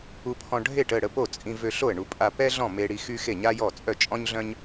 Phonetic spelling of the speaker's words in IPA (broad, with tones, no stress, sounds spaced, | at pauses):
u˧ pʰ ɔ̃˧ ɖʱ e˥˩ ʈ ə˥˩ ɽ ə˥˩ p o˥˩ t͡sʼ ĩ˧ v ø˧ ɬ o˥˩ ə̯ ɳ u˧ pʼ a˧ p ɛ˥ ɮ ɔ̃˥˩ m e˧ ɽ i˧ x y˥ x e˥˩ ɲ a˥ j ɔ˥˩ t͡sʼ œ˥˩ t͡ʃʼ ɔ̃˥ ɲ ɮ œ̃˥ ɲ